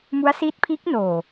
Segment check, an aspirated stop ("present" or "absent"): present